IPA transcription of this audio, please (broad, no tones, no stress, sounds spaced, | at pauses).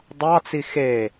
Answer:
dˤ ɑ t͡s i x e